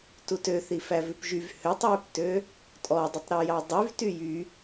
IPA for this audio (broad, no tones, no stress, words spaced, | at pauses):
tutø θifævʉpʒyv høtˤjøptø | tʼɔdˤutˤɾu jɑdˤyv tyjy